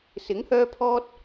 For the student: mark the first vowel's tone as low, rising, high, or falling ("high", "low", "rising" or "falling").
rising